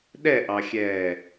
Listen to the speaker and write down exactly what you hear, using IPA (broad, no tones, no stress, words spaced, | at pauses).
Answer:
ɗɛʔɑxʲɛː